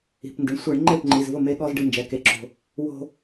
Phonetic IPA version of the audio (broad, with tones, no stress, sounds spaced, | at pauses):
i̤˩˧˩ p n d ɪ˩˧˩ ɳ sʷ e˧˩˧ ɳ ŋ͡ǃ e˥˩ p ŋ͡ǃ i˩˧˩ z v ʊ˥˩ m e˧ ɠ ɔ˧ z ɖ ɪ˧ n d͡ʒ ɛ˩˧˩ k e˧˩˧ ǁ o̤˧ | w o̤˧